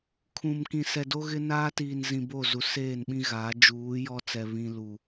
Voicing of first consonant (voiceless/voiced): voiceless